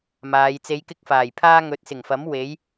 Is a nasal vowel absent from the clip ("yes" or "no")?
yes